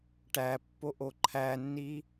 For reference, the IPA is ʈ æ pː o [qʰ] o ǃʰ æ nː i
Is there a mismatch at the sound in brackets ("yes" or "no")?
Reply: yes